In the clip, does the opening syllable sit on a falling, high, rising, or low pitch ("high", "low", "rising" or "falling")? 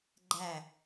falling